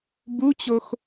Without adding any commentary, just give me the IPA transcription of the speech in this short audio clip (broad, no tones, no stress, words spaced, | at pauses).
but͡ɕox